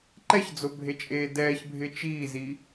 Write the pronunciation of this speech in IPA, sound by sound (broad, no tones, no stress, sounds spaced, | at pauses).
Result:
ǃ ɛ ç d͡z o bʱ e t͡ʃʼ eː d ɛː ç bʱ ɪ t͡ʃ iː z i